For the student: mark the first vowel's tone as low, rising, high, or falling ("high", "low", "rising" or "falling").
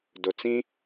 low